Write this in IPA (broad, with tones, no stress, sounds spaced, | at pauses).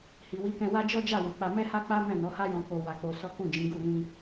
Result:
h i˨ w i˨˦ k ɛ̃˧ w a˦ d͡ʒ ɔ˦ d͡ʒ a˦˨ w u˨ k͡p a˧ m ɛ˦ h a˦ k͡p a˦ m ɛ̃˦˨ n ɔ˨˦ h a˦ j ɔ̃˧ k o˧ w a˧ k͡p o˧ s ɔ˦ k ũ˦˨ d͡ʒ ĩ˨˦ ɡ u˦˨ ɾ ĩ˧